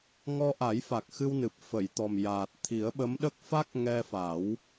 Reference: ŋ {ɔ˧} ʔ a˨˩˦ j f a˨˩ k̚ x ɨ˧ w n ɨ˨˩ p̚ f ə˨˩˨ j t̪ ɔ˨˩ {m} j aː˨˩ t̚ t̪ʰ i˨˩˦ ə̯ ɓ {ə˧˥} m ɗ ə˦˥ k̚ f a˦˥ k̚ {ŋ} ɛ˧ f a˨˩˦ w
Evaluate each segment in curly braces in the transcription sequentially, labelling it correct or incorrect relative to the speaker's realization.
correct, correct, correct, correct

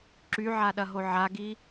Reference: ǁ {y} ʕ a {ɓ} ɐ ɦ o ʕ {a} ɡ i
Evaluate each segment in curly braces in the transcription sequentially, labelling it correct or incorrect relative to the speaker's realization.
correct, incorrect: ɗ, correct

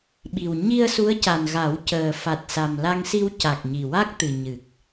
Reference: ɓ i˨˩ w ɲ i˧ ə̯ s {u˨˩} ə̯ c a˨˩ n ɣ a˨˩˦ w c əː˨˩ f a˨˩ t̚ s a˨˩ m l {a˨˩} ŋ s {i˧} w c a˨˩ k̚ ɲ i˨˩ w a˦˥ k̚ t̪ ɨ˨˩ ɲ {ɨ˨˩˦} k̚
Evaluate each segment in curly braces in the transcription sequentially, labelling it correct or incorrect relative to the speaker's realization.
incorrect: u˧˥, incorrect: a˧, correct, incorrect: ɨ˨˩

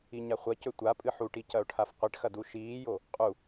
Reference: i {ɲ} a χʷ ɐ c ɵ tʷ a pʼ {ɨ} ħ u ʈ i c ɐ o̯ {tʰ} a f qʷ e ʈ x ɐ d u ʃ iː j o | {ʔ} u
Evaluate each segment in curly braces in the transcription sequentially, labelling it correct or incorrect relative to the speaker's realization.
correct, correct, incorrect: ʈʰ, incorrect: qʼ

